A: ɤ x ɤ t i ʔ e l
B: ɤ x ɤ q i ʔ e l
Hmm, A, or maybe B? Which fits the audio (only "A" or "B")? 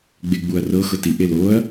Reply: A